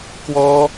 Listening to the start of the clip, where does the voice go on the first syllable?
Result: high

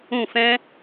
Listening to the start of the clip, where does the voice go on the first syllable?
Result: falling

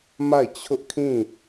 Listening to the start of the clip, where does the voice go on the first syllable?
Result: falling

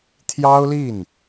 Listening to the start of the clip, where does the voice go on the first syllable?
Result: high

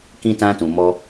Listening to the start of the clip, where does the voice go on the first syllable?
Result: high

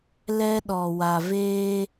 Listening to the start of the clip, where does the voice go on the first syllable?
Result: high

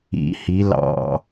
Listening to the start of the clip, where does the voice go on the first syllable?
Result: rising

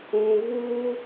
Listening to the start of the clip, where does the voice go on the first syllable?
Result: low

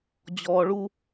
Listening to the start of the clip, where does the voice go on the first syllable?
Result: low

